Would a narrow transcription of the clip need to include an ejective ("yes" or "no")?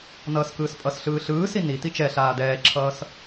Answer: yes